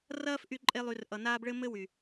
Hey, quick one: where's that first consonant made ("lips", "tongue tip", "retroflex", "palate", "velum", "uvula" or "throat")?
tongue tip